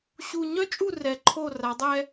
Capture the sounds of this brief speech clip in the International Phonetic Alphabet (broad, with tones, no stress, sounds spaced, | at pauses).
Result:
ɕ u˨ ɲ œ˦ t͡ʃʼ u˦˨ r ɛ˨ ǃʰ o˦˨ r a˨˦ dˤ ɛ˦